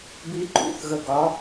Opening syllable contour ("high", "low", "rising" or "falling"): rising